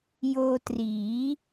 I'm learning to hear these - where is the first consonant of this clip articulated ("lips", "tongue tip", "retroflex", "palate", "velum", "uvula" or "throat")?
palate